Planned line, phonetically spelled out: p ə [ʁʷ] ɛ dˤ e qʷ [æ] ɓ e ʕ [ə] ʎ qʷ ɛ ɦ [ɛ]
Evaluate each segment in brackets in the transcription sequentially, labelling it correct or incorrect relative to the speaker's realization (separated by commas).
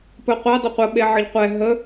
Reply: incorrect, incorrect, correct, incorrect